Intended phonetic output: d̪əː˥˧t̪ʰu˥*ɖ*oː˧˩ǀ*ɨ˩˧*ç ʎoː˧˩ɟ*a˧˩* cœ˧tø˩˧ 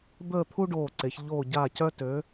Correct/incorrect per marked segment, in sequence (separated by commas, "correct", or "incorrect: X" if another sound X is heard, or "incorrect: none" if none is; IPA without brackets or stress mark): correct, incorrect: e˩˧, correct